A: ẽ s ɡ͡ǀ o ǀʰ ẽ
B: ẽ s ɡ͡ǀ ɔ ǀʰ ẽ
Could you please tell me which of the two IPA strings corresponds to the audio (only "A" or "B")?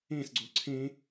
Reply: A